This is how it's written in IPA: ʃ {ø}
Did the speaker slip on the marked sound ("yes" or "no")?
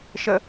yes